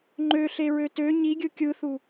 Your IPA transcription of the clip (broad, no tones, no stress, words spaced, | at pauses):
ŋ͡ǃøɬeɹø tø ɲiɡʲɯ kʲɯθu